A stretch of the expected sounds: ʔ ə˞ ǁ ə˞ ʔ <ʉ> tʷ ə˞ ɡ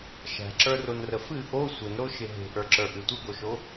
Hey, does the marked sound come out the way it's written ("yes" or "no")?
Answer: no